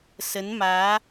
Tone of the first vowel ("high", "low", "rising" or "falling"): rising